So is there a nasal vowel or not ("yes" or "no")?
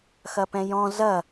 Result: yes